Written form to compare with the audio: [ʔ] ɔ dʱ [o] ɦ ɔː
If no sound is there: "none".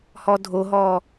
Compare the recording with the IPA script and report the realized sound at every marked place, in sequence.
h, o

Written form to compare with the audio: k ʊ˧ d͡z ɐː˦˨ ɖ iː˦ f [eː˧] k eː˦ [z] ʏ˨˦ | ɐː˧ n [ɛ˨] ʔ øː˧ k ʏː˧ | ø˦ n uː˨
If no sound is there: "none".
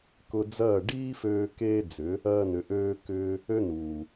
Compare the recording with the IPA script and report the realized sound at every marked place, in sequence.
øː˧, d͡z, ʏ˨

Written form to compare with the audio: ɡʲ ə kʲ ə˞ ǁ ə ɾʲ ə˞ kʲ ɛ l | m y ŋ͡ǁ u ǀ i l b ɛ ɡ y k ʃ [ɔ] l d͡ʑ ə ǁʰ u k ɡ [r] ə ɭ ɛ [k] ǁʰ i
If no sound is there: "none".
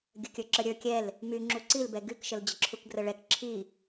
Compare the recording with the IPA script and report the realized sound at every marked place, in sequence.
ə, r, k

